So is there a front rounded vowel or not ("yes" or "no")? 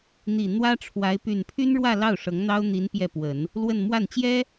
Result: yes